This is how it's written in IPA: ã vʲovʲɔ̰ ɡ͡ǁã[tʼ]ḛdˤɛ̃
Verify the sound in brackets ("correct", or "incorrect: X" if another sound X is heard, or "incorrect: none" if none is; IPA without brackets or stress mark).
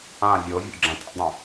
correct